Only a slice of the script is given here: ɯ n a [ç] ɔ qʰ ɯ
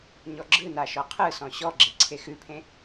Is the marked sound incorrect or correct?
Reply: incorrect